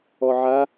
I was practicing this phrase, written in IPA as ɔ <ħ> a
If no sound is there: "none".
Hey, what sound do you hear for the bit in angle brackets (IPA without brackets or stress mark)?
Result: ʕ